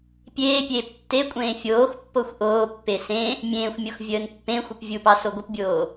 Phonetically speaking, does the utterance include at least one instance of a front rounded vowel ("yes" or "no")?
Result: no